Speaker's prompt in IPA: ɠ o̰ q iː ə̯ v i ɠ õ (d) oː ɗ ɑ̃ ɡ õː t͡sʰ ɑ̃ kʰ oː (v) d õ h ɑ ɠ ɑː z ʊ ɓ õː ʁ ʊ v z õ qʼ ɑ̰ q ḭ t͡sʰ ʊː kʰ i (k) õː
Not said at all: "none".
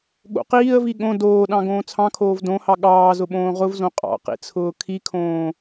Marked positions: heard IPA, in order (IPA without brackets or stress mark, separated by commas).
d, v, kʰ